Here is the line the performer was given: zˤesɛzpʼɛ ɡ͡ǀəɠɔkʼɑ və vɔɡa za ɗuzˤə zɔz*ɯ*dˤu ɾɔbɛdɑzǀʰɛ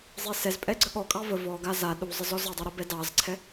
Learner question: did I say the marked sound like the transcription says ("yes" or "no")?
no